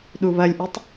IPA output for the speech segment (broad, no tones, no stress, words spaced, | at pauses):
ɗuβɐlʲʔytˤ